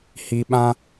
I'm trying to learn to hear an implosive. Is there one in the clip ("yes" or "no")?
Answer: yes